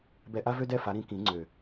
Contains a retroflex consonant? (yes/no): no